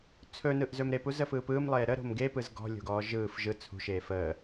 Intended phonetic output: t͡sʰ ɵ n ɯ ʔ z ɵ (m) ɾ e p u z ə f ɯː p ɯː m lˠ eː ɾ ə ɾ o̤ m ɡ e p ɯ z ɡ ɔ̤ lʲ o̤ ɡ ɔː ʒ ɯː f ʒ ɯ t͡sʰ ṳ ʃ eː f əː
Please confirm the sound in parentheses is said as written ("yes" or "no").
yes